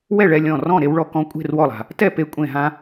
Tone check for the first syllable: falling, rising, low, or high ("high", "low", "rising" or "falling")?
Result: falling